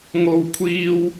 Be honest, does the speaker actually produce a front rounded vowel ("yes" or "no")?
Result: no